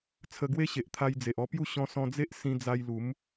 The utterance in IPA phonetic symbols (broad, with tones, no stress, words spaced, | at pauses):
t͡sʰə˧ɡwe˦ɕe˨ʔ t̪ʰa˧jd͡ze˨ʔɔ˧pju˥˧ ɕɔ̃˧sɔ̃˧d͡ze˦ʔ sĩ˧d͡za˧j lu˨˦m